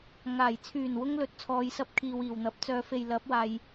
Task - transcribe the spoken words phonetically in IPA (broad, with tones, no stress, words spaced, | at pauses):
ŋaː˨˩j t͡sʰyː˨˩nwʊ˧ŋ lɵ˧t̚t͡sʰɔː˧jsɐ˥p̚ kʰiː˨wiː˨˩wn̪ɐ˨˥p̚t͡sœː˧ fe˨jlɐ˨˥p̚waː˨j